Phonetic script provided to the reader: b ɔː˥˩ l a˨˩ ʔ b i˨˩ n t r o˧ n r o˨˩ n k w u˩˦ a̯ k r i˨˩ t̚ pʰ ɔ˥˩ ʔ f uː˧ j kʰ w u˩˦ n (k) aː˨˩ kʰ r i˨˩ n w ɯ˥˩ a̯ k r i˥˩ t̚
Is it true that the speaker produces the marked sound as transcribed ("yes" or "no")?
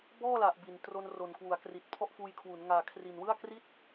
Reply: no